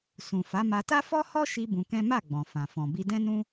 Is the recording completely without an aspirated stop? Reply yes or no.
yes